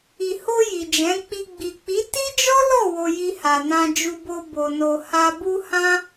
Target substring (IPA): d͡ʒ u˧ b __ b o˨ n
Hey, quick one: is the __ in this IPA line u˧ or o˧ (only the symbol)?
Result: o˧